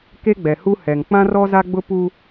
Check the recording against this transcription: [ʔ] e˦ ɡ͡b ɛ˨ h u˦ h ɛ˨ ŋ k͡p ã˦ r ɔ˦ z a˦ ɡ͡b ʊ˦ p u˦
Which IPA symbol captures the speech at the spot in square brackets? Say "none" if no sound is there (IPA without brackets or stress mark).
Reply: k